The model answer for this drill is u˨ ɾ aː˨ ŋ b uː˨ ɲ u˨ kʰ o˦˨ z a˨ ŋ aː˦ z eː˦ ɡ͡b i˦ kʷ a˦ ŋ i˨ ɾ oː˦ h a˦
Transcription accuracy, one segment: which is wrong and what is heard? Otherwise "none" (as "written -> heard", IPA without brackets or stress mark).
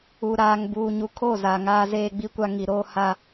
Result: none